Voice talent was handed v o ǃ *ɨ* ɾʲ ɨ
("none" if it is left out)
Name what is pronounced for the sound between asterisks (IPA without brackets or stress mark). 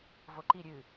i